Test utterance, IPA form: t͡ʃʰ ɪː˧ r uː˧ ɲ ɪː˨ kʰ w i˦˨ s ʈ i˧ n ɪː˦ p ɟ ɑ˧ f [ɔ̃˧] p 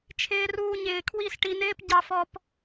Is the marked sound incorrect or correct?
incorrect